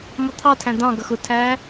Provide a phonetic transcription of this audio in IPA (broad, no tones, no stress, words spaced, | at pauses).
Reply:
mɔt̪ʰɑ tʰæ̃d̪ɑ̃ ɡʌxʊtʰæː